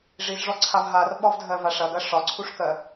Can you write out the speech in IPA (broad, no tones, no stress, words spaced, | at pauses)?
ʐizʐɔǀʰav ɦarɓɒvdʱɜvaʂ ɐɡɐ ʂɒǀʰuʂkɜ